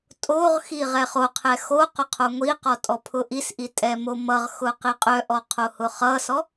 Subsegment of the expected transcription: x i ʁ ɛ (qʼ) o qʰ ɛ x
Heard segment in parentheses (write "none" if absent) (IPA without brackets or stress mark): χ